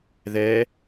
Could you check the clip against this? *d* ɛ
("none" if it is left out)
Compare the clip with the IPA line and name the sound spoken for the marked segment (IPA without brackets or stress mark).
ð